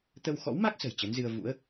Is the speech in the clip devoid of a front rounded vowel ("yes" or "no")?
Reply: yes